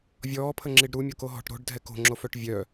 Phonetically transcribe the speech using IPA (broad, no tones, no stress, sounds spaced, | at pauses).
vʲ ɔː pʰ ə ŋ͡ǁ i ɖ ɾ u mʲ o k o ɦ ɔ̤ ʈ ɾ o̤ ɖ dʱ ɛ k o̤ ŋ͡ǁ o f œ ʈ vʲ œ